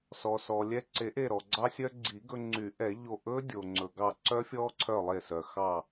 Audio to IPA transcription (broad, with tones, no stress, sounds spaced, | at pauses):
s ɔ˩ s ɔ˩ lʲ ɛ˧˩ ǀ e˨˩˦ ʔ e˧˩ ɾ ɔ˩ ɡ͡ǀ ɑ˧ sʲ œ˧ ɡ͡ǀ i˨˩˦ ɡ ɵ˧ ŋ͡ǀ y˨˩˦ ʔ ɛ˨˩˦ ʎ o˧˩ ʔ ɵ˦˥ dʲ o˩ ŋ͡ǀ ɵ˩ ɡ ɑ˧˩ ǀ œ˦˥ fʲ ɔ˦˥ ǀʰ œ˧˩ lˠ e˧˩ s œ˩ x ɑ˧˩